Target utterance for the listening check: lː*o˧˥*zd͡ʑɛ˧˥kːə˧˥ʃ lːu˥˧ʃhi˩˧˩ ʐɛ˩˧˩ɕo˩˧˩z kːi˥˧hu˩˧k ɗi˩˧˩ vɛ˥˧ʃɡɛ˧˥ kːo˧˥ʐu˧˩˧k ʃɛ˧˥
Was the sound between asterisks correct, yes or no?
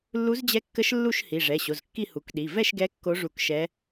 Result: no